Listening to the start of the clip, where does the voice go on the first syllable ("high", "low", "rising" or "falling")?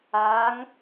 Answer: rising